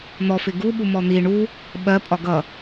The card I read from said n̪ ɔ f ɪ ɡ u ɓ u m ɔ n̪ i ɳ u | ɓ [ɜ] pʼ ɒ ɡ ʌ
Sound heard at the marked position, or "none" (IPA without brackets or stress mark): ɜ